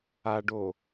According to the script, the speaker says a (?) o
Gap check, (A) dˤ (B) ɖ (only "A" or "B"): B